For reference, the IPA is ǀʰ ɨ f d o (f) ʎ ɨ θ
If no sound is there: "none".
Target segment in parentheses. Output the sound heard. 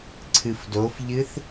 f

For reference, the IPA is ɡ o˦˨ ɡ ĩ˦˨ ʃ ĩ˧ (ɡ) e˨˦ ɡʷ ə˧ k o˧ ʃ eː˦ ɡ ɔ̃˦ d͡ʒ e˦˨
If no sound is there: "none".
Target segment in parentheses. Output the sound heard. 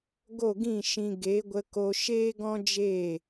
ɡ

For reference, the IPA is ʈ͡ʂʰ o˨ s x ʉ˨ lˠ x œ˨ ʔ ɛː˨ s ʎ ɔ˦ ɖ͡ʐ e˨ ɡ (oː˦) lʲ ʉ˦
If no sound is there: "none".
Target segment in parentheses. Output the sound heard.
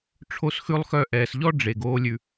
oː˦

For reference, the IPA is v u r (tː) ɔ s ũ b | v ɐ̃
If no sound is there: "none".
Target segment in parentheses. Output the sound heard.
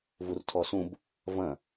tʰ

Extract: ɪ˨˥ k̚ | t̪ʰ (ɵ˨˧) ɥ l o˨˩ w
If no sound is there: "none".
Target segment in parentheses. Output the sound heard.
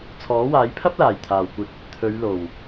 ɵ˨˧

